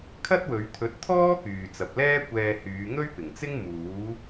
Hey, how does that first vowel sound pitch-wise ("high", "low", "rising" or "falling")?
high